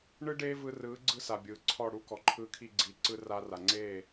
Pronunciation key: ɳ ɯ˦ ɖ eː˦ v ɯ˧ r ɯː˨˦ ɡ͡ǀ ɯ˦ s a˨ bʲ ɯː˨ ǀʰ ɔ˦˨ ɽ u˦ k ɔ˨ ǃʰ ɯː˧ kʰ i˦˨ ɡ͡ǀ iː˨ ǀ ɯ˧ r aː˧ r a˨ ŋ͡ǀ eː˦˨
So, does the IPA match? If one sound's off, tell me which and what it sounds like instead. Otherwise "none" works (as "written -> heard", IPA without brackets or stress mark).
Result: none